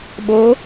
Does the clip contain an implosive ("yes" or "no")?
yes